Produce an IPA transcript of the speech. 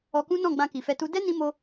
ɔ˧ k ũ˦ n ɔ̃˦˨ ɡ͡b ã˧ k i˨ f ɛ˧ t u˦ d ɛ˦ n ĩ˧ m o˧

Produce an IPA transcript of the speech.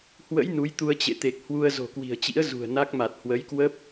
h w ə̰˧˥ j n u˨˦ j t̪ u˧ ə̯ t͡ɕ ḛ˧˨ t̪ e˨˩ k̚ h w u˧ ə̯ z o̤˨˩ k w i̤˨˩ ə̯ t͡ɕ ḭ˧˥ ə̯ z ṳ˨˩ ə̯ n a˦˥ k̚ m a˨˩ t̚ h w ə˨˦ j k w ə˦˥ p̚

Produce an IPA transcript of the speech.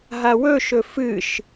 ɦ a w ɵ ʃ ɵ f ɨ ʃ

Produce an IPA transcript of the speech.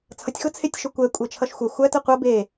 t͡sʰ ʌ tʲ x ʊ t͡sʰ e tʲ ʃ ʊ kʷ ɛ kʷʼ e t͡ʃʰ ʌ ʃ xʷ ɛ xʷ æ t ə qʷ ʌ b e

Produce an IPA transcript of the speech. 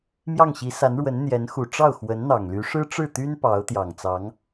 m j ɑ˥˩ ŋ ɕ i˧˥ s a˧˥ n ɻ w ə˧˥ n n̪ j ɛ˧˥ n x u˨˩ ʈ͡ʂ ɑ˥˩ ʊ̯ x w ə˧˥ n n̪ ɑ˨˩ ŋ l y˧˥ ʂ ɻ̩˥ ʈ͡ʂ ɻ̩˥˩ t̪ y˥ n p ɑ˧˥ ʊ̯ t̪ j ɑ˨˩ ŋ t͡s ɑ˧˥ ŋ

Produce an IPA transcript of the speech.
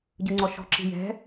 ɟ ɯ ŋ͡ǀ ɔ ʃ ɔ̤ ǁ i̤ j ɛ̤

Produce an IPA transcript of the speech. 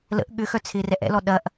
l ə̰ ʔ ɠ ʏ x œ t͡sʰ ɪː r ɛ ʔ ɛ̰ l ɔ ɗ ɐ ʔ

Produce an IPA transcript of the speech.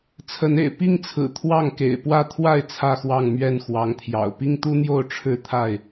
t͡sʰ ə˨˦ n ḛ˨˩ ɪ̯ p i˥˨ ŋ t͡sʰ ɹ̩˨˩ t̪ʰ w ɑ˥˨ ŋ k ḛ˨˩ ɪ̯ p w ä˦ t̪ʰ w a˥˨ ɪ̯ t͡sʰ ä˥˨ x w ɑ˥˨ ŋ m ɥ ɛ˥˨ n x w ɑ˨˦ ŋ t̪ʰ j ɑ̰˨˩ ʊ̯ p i˦ ŋ t̪ u˦ n̪ j o˥˨ ʊ̯ ʈ͡ʂʰ ɻ̩˥˨ t̪ʰ a˥˨ ɪ̯

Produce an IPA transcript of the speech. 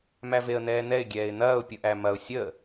m æ v e ə̯ n̪ ɛː n̪ ɛ ɪ̯ ɡʲ ɛː ɪ̯ n̪ ɐː ʊ̯ pʲ ɯ ʔ æ m ɐ ʊ̯ sʲ ə

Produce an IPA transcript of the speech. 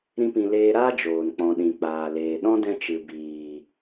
ɾ ĩ˦ p ĩ˧ l eː˧ ɾ aː˦ d͡ʒ oː˨ n k͡p ɔ̃˨ ɗ ĩ˨ k͡p aː˨ l eː˨ ɗ ɔ̃˦ d ɛ̃˧ t͡ʃ ɨ˨ b iː˨

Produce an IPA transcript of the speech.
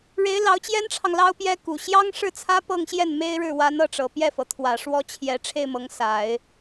ɻ e˧˥ ɪ̯ l ɑ˧˥ ʊ̯ t͡ɕ j ɛ˥ n ʈ͡ʂʰ ɑ˨ ŋ l ɑ˥ ʊ̯ p j ɛ˥ k u˨˩ ɕ j ɑ˥ ŋ ʂ ɻ̩˥˩ t͡sʰ ä˥ p ɤ˥˧ ŋ ɕ j ɛ˥˩ n m e˥ ɪ̯ ɻ ɻ̩˥˩ w a˧˥ n ɤ˥˩ ʈ͡ʂ ɤ˨˩ p j ɛ˥˩ f ɤ˩ t̪ʰ w ä˨˩ ʂ w ɔ˥ t͡ɕʰ j ɛ˧˥ ʈ͡ʂʰ e˥˩ ɪ̯ m ɤ˧˥ ŋ s a˨˩˦ ɪ̯

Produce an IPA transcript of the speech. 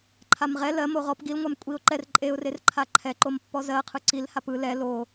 ǃʰ a m ʁ ɛ l ɜ m o ʁ ɔ p ɡ i l ŋʷ a m kʷʼ i ʊ̯ ǃ ɛ r ǃʼ e ʊ̯ r e r ǃʰ a ǃʰ ɛ ǃ o m pː ɔ z ɜ qʰ ɯ ǀ i l h a p ɯ l ɛ l o

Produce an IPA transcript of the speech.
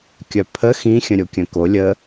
kʲ œ pʰ ə x ĩ xʲ ə̃ ɾʲ o kʲ œ̃ k o lʲ ə

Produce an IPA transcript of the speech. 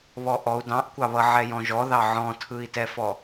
β ɔ ʔ ɔ u̯ d ɑ̃ ʔ kʷ ɑ β ʌ ʕ ɛ j ɔ̃ ʒ ɔ ð ɑ ʕ ɔ̃ tʰ ɯ i̯ t ɛ f ɔ

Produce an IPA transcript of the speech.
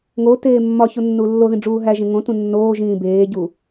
ŋ o t eː mː ɒ ç o nː uː lː o ð ĩ ɖ͡ʐ uː ɦ æ ʒ ẽ ŋ õ t ũ nː oː ʒ ĩː b eː ɟ u

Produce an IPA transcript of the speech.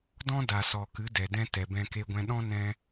d ɔ̃˦ d a˨ s ɔ˨ k ɨ˨˦ d ɛ˨ d ɛ̃˦ t ɛ˨ b ɛ̃˧ k e˧ ɡʷ ɛ̃˧ ɗ ɔ̃˦ n ɛ̃˧

